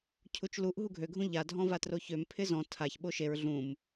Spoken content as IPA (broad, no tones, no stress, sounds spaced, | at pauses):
cʰ u t͡ʃ l u ʔ ɦ u ɡʱ ø ɡʱ ũ ʎ a dʱ ɔ̃ v a t r o ç ø m pʰ ɪ z ɔ̃ tʰ a ç ɓ o ʃ e ɹ ɮ ũ m